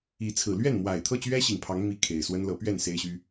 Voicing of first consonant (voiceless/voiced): voiceless